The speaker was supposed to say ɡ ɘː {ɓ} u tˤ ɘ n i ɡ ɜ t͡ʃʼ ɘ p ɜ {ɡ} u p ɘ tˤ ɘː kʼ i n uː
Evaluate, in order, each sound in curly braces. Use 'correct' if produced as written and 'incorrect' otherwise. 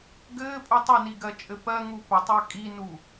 incorrect: pʼ, incorrect: ŋ

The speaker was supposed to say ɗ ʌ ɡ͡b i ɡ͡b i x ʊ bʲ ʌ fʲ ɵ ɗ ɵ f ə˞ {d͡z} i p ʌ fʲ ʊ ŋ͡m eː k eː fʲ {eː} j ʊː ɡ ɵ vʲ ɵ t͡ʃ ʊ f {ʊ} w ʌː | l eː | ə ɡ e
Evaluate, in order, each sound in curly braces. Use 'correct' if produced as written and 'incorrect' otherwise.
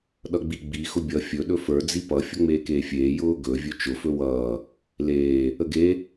correct, correct, incorrect: ɵ

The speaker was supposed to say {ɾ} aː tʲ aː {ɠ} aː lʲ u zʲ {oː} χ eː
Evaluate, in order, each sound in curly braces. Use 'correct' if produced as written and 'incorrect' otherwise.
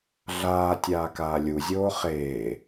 incorrect: ɮ, incorrect: k, correct

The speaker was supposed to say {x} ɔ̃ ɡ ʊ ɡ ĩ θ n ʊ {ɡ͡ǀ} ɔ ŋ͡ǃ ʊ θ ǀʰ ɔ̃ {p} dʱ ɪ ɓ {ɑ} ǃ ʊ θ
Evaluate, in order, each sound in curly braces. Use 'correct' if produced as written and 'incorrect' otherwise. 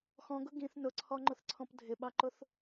correct, incorrect: ǀʰ, correct, correct

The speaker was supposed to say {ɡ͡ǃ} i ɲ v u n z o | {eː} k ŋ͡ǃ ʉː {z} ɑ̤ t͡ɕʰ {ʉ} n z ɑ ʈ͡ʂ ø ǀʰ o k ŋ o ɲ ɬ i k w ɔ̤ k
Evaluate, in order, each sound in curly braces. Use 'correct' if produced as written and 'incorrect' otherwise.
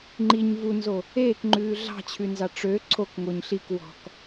incorrect: ŋ͡ǃ, correct, incorrect: ɮ, correct

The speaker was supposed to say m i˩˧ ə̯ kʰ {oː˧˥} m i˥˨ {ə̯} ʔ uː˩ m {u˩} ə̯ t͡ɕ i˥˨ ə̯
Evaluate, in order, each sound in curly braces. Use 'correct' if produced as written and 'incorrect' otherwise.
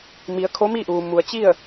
incorrect: o˧˥, incorrect: none, correct

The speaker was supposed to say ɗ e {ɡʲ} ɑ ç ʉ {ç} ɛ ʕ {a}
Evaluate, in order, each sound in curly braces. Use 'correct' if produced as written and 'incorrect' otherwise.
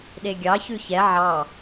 correct, correct, incorrect: ɑ

